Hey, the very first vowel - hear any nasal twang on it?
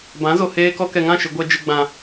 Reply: yes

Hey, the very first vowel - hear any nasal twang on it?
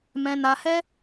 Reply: yes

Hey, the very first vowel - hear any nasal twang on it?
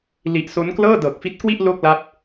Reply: no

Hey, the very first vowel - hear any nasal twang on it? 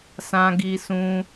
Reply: yes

